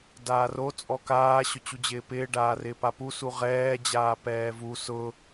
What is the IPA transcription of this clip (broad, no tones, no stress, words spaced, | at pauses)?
daːro t͡sʼɔkaː ɕʊt͡ɕud͡ʑɪːpɪː ɖaːrɪːpapu suʁɛː d͡ʑaːpɛːvu sʊ